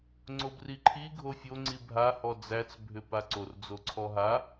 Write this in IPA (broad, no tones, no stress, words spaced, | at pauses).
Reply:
ŋ͡ǀobriǃʰi ɡʱofʲo ŋ͡ǀibʱa hɔd͡zæt͡s bʱʏpaǀor d͡zoǀʰɔɦa